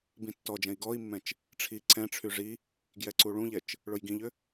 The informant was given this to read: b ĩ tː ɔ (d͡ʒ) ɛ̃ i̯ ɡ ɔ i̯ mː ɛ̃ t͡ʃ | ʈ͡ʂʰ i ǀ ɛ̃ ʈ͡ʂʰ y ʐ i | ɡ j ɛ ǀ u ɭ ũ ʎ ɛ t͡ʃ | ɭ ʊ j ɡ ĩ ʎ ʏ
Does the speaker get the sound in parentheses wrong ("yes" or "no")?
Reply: no